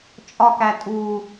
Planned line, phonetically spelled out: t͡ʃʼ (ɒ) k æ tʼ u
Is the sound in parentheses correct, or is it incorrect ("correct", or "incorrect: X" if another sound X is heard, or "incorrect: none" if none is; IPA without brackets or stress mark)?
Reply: correct